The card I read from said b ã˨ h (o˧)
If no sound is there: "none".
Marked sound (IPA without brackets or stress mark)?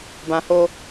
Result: o˧